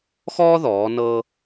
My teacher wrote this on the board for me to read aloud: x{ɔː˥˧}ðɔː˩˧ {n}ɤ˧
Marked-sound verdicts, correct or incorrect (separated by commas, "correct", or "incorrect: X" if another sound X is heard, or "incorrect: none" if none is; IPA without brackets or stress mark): incorrect: ɔː˥, correct